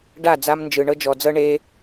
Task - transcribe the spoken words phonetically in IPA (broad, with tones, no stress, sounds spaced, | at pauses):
ɖ a˦˨ d͡z a˧ m n d͡ʒ ɯ˨ ɳ ɤ˧ d͡ʒ ɔ˨ d͡z ɤ˧ ɳ e˧